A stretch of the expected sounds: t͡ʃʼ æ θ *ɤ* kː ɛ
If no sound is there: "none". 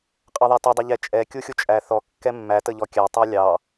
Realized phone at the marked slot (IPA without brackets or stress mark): ɔ